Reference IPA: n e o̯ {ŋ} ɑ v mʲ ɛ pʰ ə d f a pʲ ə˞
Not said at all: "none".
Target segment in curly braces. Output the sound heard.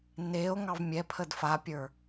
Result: ŋ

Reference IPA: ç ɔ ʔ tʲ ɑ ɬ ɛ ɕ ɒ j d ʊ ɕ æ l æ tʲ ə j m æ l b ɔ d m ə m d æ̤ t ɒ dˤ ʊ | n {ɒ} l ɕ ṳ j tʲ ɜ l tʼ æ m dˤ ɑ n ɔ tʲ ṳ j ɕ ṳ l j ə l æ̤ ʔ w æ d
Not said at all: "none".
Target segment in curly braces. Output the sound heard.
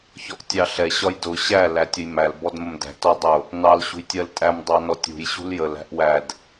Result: ɑ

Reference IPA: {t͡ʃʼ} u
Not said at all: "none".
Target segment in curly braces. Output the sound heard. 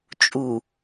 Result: t͡ʃʼ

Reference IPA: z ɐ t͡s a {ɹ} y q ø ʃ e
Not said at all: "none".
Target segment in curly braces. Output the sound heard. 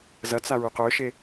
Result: ɹ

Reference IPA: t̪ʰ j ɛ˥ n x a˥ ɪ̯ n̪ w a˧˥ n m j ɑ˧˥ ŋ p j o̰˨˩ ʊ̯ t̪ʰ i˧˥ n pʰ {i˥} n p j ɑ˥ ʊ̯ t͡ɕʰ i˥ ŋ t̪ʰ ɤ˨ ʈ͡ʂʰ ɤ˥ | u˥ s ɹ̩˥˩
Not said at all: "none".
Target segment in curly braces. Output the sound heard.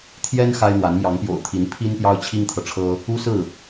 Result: i˥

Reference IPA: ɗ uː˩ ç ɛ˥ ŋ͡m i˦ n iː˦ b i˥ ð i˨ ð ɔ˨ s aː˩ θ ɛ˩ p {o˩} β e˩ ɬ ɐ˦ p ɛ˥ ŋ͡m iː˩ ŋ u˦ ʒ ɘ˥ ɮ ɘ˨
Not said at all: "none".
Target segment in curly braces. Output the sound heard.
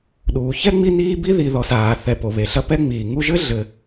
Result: o˩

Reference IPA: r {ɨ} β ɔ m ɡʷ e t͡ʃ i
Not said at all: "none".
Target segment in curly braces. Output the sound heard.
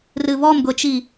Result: ɨ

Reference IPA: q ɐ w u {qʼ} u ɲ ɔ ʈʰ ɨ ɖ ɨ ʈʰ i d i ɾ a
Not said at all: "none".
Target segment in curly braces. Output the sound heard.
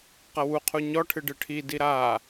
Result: qʰ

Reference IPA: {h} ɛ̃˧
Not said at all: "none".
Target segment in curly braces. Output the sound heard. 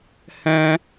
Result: h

